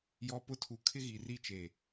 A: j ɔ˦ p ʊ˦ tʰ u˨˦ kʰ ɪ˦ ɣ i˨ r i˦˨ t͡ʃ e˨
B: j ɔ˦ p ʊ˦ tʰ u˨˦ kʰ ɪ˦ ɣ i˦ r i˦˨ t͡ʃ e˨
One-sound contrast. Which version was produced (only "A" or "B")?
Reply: A